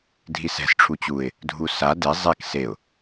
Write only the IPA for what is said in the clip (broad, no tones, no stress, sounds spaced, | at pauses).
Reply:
dʱ i s ɛ̤ s ʈ͡ʂʰ u t͡ɕ u ɪ̯ | dʱ u s a d e zˤ e k s e ʊ̯